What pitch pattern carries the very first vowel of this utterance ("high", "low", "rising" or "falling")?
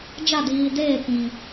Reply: falling